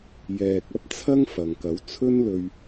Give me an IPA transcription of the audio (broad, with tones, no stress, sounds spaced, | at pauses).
j ɛː˨ k̚ ɐ˥ p̚ t͡sʰ ɐ˥ ŋ f ɐ˨ ŋ k ɐ˨˥ w t͡sʰ ɵ˥ n l ɵ˧ ɥ